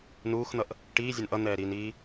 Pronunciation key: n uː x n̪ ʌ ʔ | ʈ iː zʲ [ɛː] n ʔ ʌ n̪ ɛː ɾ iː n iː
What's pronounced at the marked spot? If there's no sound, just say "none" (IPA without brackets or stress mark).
ɛ